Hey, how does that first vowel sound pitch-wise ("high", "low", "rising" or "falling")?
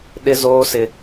high